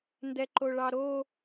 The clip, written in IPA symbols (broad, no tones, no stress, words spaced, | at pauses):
ndɛǃoɭɑɾo